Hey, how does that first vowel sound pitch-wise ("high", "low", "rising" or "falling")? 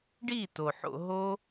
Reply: falling